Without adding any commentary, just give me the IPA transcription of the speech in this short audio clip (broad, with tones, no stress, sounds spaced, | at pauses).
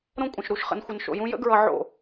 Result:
ɾ õ˦ kʷʼ ə̃˨ ʃ ɾ u˨ ʃ χ ə̰˨ n xʷ ə˨ n ʃ o̰˨ j ũ˧ j ə̰˦ ɡ ɹ ʌ˧ ʕ o̰˦˨